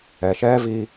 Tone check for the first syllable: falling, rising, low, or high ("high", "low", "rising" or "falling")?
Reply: low